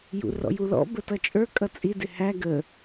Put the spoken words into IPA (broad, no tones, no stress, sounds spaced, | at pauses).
j ṵ r ɔ̰ j u l ɔ̰ b ə t ʌ t͡ʃʼ ə˞ kʼ ʌ t͡sʼ i d ɪ h æ ɡ ə